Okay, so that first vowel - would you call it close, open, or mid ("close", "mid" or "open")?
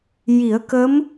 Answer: close